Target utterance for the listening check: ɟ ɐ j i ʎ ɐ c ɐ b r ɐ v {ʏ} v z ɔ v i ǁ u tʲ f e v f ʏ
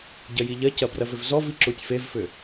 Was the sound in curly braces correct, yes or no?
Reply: yes